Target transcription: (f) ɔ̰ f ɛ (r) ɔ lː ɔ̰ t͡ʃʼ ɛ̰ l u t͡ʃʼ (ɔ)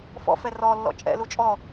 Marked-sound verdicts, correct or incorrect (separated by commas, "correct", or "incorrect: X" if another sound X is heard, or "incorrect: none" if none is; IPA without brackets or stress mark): correct, correct, correct